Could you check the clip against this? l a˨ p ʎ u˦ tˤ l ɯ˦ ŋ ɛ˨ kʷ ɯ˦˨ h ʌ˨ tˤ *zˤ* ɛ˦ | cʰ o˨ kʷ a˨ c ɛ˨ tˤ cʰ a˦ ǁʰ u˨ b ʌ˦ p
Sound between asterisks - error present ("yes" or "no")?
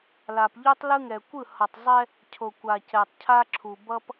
no